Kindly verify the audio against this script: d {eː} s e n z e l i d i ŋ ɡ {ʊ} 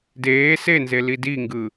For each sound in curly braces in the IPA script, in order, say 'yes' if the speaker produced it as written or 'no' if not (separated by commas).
yes, no